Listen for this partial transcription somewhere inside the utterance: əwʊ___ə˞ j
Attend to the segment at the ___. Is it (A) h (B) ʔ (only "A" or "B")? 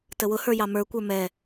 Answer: A